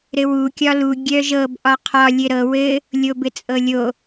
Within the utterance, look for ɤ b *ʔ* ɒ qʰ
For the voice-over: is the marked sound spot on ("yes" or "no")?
yes